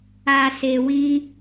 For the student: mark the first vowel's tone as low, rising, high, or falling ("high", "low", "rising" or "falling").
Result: low